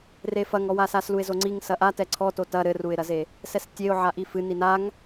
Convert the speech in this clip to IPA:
refɐŋɔwa sasluɪ̯zoŋ͡ǀiŋ sɐʔatɛ ǀʰɔto tɐ ɾɘruɪ̯ɾɐze | sɛstʲeʊ̯ ʕaʔifɨ ninaŋ

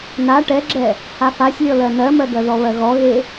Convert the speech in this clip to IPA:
na ʈɛɡ͡ǁɛ | hafasʲlʲɔlɜ nɜmɜɡɜðɔ βɜɣɔɣe

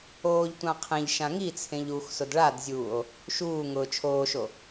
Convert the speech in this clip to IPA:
oːʎtʷã qʰẽʎ ʃãŋit͡sʰẽʎ ux sʊdɭadzʲuːo̯ | ʃuː ŋʊːt͡ʃʰoːʃo

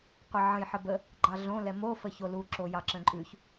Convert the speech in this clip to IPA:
qʷəʕə̃j ħəbə | ɡ͡ǃɑɮõ lɛmo fəçolu ǁojɑǁə̃ǃʼʉç

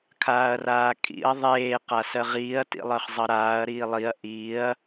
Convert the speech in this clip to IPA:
kʰaːɐ̯raːkʼḭɐ̯ ðˤeː qasɜʁiːɐ̯ tḭlˠɜχzˤʌɾaːɐ̯ ɾiːlˠiɐ̯ ʔiɐ̯

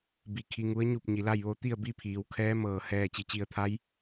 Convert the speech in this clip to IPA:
bi˧˩ kʰi˧ŋu˧˥ə̯ ɲu˥˨p̚ ɲi˩la˥˨jʋo˧˥ t̪i˥˨ə̯bi˥˨ pʰiː˩˧wkʰɛː˧˥ mɤː˩hɛː˧˩ t͡ɕi˩˧t͡ɕi˧˩ə̯ t̪ʰa˧˥j

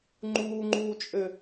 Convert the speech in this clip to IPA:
ŋ͡ǃuːŋ͡ǃuːt͡ʃʼɘ

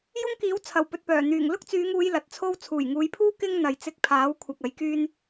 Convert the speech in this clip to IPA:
jʊ˥ŋkiː˨˥w t͡sʰɐ˨˩wpɵ˨t̚pœː˨˩ n̪yː˨˩ŋlʊ˥k̚t͡syː˨˧ŋuː˨˧j lɐ˨t̚t͡sʰo˥w t͡sʰuː˨˩jŋuː˨˧jpʰuː˥ kɪ˥ŋ n̪ɐ˨jt͡sɪ˧k̚pʰaː˨˥wkʷʰɐ˨k̚ ɐ˨˥jkyː˥n

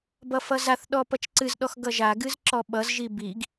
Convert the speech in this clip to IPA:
bʌfʌzaθɗɔ pʌt͡ʃǀɨzɗɔx ɡʌʒaɡɨz ǁɔɓʌzʒi biɡ

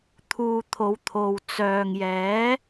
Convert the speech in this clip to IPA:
t̪ʰuː˧ t̪ʰo˨˧wt̪ʰo˨w t͡sœː˨ŋjɛː˨˥

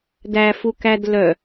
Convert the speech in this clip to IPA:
dæ fukæd lœ

